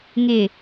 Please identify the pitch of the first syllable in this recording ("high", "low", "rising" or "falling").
low